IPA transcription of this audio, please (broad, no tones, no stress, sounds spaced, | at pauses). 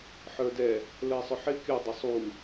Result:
ħ ə˞ d ɛ | l ə e̯ sˤ ʊ ħ ɪ kʲ ʊ dˤ ə sˤ u